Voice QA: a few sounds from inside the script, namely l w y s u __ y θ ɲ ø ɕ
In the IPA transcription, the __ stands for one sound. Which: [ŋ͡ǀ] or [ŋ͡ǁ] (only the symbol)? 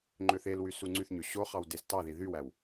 ŋ͡ǀ